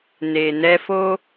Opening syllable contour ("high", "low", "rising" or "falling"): low